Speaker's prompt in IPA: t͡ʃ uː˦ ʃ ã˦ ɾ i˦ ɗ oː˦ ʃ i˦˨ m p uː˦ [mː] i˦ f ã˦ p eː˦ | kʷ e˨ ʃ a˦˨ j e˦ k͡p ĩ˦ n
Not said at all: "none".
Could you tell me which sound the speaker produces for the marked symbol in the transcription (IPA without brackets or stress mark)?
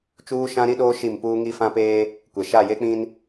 ŋ